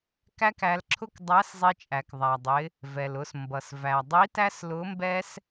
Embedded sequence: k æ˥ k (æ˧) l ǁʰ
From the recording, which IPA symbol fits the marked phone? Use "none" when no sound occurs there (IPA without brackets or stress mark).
æ˧